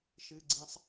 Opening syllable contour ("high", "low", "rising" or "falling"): high